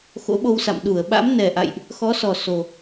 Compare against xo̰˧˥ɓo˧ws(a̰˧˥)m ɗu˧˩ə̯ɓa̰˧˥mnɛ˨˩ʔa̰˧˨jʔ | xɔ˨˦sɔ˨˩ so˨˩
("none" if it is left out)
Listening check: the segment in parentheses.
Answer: a̰˧˨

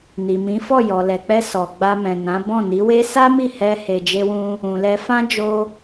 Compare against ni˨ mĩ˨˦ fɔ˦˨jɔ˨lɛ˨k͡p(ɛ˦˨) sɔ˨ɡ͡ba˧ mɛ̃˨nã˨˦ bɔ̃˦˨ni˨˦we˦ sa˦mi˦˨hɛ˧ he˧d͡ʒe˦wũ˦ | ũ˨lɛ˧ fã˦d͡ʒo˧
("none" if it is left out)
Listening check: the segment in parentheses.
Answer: ɛ˧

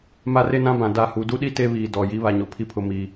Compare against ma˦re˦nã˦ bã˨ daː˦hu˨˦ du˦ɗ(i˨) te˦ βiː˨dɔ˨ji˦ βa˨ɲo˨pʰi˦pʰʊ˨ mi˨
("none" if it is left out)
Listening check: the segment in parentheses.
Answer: i˦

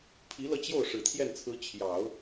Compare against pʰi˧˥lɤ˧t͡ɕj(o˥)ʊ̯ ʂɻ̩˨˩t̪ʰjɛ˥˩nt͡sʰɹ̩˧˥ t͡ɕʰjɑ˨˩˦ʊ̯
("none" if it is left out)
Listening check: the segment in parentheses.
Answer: o˥˩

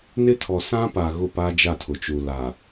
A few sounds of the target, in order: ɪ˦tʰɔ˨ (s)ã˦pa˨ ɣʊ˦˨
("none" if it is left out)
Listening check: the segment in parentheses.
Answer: s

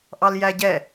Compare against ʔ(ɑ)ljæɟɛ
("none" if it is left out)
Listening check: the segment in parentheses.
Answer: ɑ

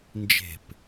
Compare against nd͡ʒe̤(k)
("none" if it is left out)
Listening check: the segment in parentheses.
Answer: p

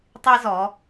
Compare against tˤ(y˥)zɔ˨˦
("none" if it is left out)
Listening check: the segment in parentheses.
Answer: i˥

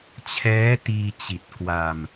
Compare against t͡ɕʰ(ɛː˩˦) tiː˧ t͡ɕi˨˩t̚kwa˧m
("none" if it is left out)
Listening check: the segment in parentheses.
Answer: ɛː˦˥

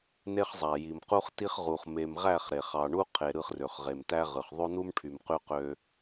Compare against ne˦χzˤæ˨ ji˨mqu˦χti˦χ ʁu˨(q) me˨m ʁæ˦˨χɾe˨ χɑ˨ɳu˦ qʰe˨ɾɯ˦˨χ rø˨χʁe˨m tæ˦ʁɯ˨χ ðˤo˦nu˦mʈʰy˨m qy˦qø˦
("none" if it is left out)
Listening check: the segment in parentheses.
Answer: χ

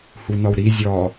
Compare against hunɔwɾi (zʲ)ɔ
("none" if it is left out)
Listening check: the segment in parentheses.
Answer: zʲ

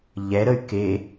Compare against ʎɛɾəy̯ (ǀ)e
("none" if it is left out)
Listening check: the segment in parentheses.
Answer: k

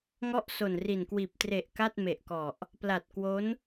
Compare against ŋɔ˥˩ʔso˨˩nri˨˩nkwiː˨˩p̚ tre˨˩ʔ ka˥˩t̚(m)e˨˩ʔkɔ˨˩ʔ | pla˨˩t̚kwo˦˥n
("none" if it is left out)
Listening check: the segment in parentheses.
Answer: m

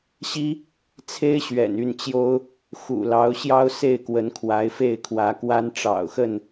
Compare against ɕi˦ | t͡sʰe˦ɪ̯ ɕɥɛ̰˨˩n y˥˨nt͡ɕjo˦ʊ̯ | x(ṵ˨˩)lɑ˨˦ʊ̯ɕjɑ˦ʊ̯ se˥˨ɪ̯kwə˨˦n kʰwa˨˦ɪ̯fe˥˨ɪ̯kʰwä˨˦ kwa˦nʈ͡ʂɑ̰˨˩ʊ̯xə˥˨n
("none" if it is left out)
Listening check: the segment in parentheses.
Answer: ṵ˨˩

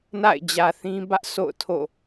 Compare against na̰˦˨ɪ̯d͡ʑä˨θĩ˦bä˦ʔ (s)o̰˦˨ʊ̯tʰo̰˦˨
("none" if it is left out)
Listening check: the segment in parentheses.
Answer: s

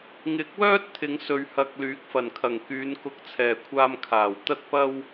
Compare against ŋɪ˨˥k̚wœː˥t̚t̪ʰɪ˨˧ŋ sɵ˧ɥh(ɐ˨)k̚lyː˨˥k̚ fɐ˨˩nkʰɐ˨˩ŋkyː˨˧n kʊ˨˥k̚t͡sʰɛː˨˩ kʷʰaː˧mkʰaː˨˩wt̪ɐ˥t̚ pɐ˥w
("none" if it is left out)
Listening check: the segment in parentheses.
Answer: ɐ˧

